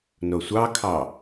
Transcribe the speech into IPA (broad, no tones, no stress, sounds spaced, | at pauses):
n o sʷ ɑ kʰ ɑ